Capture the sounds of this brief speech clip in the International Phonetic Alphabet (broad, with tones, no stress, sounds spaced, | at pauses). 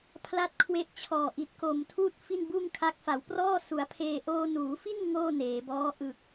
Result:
pʰ l a˦˥ t̚ kʰ w e˦˥ ʔ t͡ɕʰ ɔː˨˩ ʔ i˨˩ t̚ k o˨˩ m tʰ uː˥˩ t̚ f i˥˩ n b uː˥˩ ŋ kʰ a˦˥ k̚ f a˩˦ w p r ɔː˥˩ s u˩˦ a̯ pʰ eː˧ ʔ oː˧ n uː˩˦ f i˥˩ n ŋ oː˥˩ n eː˩˦ b ɔː˦˥ ʔ ɯ˨˩ k̚